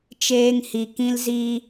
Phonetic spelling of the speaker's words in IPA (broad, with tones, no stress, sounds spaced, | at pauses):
t͡ʃ eː˧ ŋ h i˨ k ĩ˧ l z iː˧